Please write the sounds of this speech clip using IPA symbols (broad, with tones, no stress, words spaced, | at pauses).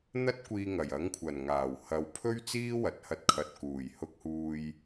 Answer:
n̪ɐ˥t̚kʷiː˧ŋɐ˨˩j ɐ˨˥ŋkʷʰɐ˨˩nŋaː˨˩w hɐ˨wpʰɵ˥ɥ t͡siː˥wɐ˨t̚hɐ˧t̚ kʰɐ˨t̚kuː˨˩j hʊ˧k̚huː˧j